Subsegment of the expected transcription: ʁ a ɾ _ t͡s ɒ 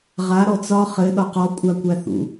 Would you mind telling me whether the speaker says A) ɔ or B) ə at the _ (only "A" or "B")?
A